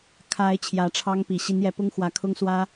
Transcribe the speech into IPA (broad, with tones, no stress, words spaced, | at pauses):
kʰa˨˦ɪ̯ t͡ɕʰjä˨˦ʈ͡ʂʰɑ˦ŋpi˨˩ ɕi˨˦njɛ˨˦pʊ˦ŋ xwä˨˦kʰʊ˦ŋswä˦